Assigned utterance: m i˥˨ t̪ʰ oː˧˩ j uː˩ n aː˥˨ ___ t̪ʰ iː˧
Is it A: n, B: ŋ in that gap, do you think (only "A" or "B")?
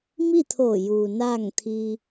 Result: B